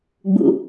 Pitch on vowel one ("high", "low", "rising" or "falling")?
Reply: low